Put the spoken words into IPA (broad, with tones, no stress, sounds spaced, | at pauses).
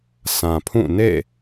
s ã˨ pʰ ũ˦˨ n ḛ˦˨